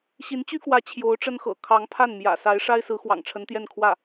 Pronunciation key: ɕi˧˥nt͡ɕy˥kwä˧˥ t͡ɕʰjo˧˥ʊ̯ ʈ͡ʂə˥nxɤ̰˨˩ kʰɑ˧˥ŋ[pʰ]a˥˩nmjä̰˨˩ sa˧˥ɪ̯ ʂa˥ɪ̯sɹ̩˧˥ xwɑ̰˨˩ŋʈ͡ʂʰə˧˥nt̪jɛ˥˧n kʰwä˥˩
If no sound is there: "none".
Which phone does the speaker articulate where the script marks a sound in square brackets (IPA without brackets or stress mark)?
pʰ